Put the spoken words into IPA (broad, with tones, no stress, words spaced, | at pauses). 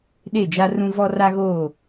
ɗe˦˨d͡ʒa˦rũ˦ vɔ˦ra˦ɣoː˦˨